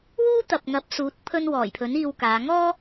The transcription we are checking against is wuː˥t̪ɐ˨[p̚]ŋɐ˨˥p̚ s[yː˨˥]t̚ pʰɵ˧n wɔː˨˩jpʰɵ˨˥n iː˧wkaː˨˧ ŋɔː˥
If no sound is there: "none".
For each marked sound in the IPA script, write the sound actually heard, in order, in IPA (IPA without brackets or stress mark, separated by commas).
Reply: p̚, uː˨˥